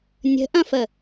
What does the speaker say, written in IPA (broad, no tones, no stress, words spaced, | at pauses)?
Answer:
nʲə̤ʔɐ̃fə